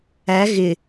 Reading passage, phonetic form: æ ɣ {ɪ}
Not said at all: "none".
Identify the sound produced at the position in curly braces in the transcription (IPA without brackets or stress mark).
ɪ